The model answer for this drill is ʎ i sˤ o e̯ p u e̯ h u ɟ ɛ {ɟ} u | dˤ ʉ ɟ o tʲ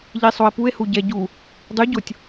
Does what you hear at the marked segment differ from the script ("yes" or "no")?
no